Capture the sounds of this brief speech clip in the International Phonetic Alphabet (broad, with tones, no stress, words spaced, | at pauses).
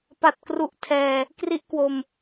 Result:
pa˨˩t̚kru˨˩ʔtʰɛː˨˩ | kri˦˥ʔkwo˧m